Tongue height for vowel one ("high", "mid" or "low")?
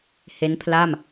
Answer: mid